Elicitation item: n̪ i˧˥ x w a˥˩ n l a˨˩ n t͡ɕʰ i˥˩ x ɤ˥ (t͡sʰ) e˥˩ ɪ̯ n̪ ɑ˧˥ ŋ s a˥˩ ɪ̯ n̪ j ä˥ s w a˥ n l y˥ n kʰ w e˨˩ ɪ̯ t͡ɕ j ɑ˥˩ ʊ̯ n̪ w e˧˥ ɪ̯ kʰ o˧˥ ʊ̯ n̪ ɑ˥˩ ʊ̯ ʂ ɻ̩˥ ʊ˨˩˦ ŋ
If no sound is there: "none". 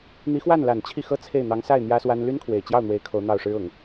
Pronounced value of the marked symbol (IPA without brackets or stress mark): t͡sʰ